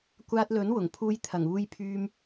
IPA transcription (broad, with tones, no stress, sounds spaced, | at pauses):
kʷ aː˧ t̚ l ɵ˨˥ n w ʊ˨˩ ŋ pʰ uː˧ j t̪ʰ ɐ˨˩ ŋ uː˧ j pʰ yː˧ m